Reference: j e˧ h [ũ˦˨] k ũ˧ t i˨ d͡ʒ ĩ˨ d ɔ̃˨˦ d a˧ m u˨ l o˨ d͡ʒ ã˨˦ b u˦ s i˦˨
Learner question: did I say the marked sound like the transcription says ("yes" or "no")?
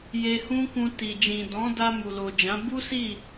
no